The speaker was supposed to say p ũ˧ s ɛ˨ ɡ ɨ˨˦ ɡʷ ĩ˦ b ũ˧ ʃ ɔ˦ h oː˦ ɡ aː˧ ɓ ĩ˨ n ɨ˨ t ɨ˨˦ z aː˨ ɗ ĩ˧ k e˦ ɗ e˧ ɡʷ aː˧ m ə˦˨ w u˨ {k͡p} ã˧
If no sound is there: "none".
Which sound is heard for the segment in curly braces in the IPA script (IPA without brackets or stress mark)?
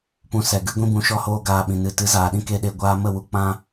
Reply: k͡p